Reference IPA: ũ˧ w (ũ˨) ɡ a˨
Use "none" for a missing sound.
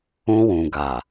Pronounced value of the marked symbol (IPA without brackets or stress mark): ũ˨